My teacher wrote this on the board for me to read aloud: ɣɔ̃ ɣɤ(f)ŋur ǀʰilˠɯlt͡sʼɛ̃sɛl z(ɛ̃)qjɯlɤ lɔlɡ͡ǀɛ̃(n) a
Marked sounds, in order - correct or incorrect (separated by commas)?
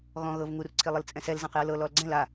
incorrect, correct, incorrect